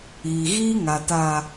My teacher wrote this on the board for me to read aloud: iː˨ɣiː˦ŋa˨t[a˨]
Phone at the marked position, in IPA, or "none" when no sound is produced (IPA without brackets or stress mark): a˨